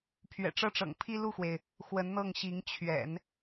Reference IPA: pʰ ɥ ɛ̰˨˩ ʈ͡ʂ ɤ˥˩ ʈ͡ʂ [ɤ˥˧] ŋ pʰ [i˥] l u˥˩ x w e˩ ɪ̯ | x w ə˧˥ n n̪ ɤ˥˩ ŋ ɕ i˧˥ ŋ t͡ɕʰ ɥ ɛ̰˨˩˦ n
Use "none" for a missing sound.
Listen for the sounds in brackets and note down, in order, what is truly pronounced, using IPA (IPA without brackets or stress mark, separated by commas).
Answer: ɤ̰˨˩, i˥